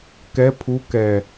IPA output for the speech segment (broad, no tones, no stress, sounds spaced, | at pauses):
k ɛ pʰ u k ɛ